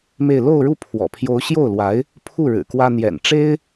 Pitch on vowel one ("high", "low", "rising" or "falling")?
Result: falling